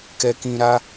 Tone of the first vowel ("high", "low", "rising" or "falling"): low